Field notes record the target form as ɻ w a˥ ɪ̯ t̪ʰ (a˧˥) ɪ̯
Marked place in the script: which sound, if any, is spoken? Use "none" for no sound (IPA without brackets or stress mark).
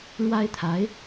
a˧˥